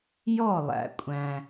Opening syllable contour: falling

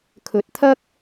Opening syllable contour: rising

